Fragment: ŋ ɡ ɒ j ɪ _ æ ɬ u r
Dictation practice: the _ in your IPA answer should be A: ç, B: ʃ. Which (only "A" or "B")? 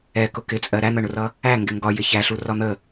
A